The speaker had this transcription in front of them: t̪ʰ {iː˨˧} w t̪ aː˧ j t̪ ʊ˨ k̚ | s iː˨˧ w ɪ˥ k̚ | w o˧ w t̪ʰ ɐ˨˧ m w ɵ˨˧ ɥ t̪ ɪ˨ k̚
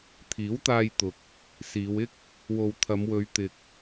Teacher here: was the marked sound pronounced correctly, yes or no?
no